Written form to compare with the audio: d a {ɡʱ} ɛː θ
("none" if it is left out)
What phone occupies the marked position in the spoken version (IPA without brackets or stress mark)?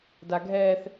ɡʱ